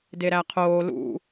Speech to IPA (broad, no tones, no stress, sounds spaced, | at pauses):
d e ɾ æ qʰ oː l ṵ